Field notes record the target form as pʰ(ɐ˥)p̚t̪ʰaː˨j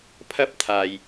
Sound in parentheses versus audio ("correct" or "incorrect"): correct